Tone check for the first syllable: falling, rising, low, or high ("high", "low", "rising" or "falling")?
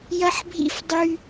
high